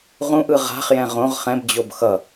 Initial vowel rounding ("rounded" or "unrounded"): rounded